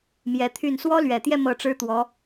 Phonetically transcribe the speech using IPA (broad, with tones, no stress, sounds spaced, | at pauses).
m j ɛ˧˥ t̪ʰ y˥˩ n s w ɔ˥ l ɥ ɛ˨˩ t̪ j ɛ˥˧ m ɤ˥˩ ʈ͡ʂ ɻ̩˥ t̪ w ɔ˧˥